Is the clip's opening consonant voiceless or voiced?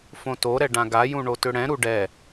voiceless